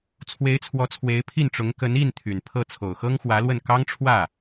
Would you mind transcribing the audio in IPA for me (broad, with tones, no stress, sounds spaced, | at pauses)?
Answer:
t͡sʰ w e˧˥ ɪ̯ t͡sʰ w ɔ˧˥ t͡sʰ w e˧˥ ɪ̯ pʰ i˥˩ n ʈ͡ʂ ʊ˧˥ ŋ k ə˧˥ n i˥˩ n t̪ʰ y˨˩ n pʰ ɤ˥˩ t͡sʰ o˨˩ ʊ̯ x ɤ˥ ŋ x w ä˧˥ l w ə˥˩ n k ɑ˥ ŋ ʈ͡ʂʰ w ä˥˩